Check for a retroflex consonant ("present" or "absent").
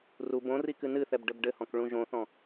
present